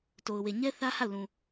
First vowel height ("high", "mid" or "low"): mid